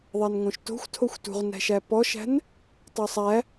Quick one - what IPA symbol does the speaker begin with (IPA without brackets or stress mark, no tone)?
ðˤ